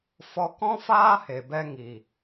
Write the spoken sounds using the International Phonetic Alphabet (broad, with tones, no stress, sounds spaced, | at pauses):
f ɔ˧ k ɔ̃˦ f aː˦ h e˨ b ɛ˧ ŋ i˨